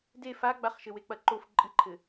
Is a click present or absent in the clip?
present